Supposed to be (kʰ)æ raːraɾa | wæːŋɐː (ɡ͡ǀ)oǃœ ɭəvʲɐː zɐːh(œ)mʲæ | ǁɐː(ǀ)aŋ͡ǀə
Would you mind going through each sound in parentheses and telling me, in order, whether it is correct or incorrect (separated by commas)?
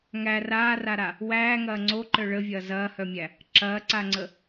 incorrect, incorrect, correct, correct